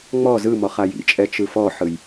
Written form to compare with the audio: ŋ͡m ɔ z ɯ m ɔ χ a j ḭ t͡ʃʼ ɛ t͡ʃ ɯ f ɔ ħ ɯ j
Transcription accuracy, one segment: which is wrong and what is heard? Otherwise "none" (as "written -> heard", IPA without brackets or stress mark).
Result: none